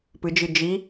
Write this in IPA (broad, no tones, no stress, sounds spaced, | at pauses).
p ɨ d͡ʒ ɨ d͡ʒ i